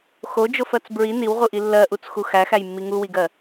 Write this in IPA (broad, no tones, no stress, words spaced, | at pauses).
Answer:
xod͡ʒofɜt͡s bɹi niwʁuʔi lːɜʔut͡sxu xæxæjmːi ŋuwiɡɜ